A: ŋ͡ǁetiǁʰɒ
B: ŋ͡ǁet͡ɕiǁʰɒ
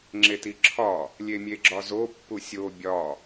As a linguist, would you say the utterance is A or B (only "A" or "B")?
A